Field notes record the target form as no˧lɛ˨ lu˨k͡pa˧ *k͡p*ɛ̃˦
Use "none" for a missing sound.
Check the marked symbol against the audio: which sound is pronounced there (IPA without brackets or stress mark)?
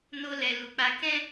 k